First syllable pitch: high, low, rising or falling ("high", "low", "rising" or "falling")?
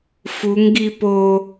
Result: rising